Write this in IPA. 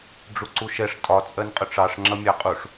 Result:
ɖ͡ʐ u ǀ u ʃ ɛ ʂ tʼ ɒ t͡sʼ ɜ n qʼ ʊ ʈ͡ʂ ɑ ʂ ŋ͡ǁ ʌ mʲ ɑ qʼ u ʂ

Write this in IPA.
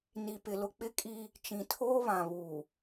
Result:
n i˨ p ɪ˨ l ʊ˨ k͡p ɪ˦ kʼ i˦ | t͡ʃ ĩ˨ tʰ oː˦ β ã˨ β uː˨

